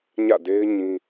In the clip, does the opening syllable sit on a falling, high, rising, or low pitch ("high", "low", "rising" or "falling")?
falling